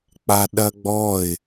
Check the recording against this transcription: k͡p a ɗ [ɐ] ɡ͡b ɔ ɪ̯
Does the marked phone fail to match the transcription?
no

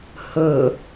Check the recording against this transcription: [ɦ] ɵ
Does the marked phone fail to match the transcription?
yes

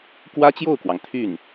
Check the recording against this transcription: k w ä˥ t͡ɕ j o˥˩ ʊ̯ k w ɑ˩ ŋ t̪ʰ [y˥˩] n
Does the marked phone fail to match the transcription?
no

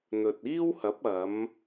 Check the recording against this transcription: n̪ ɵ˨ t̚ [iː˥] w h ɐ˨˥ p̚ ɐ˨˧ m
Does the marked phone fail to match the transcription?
no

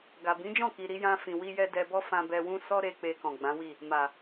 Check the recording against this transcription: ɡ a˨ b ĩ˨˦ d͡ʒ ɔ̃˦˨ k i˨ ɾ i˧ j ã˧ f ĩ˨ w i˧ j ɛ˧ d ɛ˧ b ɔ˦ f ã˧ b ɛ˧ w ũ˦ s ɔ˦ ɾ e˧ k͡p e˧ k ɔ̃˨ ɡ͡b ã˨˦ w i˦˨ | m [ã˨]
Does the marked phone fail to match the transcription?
yes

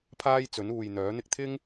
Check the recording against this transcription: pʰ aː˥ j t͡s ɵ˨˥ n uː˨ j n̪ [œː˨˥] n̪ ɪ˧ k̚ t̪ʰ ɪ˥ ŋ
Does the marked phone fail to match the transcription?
no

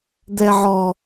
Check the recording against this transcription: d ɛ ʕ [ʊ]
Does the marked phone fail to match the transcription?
yes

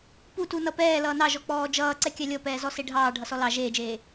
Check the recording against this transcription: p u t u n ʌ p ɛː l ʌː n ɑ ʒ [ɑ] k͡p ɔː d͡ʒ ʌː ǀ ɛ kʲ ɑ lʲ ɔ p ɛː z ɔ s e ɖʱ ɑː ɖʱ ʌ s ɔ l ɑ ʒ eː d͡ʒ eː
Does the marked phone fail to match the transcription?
yes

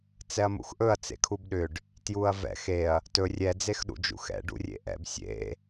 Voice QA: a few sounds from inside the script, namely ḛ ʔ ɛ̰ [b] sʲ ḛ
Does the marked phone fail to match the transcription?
no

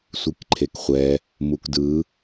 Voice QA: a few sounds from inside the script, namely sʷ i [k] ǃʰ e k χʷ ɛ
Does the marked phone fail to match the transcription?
no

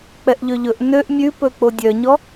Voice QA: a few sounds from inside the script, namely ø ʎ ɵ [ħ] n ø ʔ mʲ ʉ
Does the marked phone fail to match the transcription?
yes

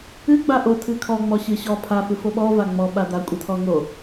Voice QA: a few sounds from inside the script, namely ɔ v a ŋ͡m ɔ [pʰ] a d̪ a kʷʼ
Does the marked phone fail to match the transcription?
yes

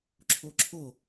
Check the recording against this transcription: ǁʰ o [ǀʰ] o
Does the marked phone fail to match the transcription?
yes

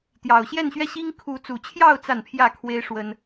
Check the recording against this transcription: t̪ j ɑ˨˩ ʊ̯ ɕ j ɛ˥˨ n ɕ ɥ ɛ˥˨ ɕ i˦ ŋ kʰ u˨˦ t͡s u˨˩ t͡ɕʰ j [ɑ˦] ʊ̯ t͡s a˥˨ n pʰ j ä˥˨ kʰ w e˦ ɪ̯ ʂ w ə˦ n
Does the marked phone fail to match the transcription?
yes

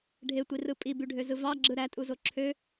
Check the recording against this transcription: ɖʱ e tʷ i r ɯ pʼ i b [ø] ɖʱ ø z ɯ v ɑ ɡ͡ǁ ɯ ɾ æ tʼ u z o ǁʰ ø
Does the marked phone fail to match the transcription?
yes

